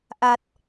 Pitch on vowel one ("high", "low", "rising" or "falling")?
low